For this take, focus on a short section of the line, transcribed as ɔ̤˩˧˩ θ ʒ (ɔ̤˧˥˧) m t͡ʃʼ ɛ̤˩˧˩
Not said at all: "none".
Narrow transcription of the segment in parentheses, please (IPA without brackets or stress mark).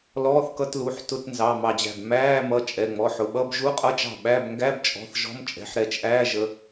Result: ɔ̤˧˥˧